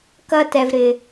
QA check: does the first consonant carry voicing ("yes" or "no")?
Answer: no